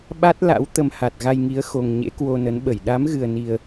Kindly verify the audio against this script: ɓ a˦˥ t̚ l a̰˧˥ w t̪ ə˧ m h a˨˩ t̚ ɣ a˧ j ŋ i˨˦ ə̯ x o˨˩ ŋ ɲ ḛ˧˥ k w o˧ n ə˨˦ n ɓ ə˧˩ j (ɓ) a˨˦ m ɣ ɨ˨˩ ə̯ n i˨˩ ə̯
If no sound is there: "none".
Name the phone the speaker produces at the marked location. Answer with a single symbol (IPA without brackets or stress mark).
ɗ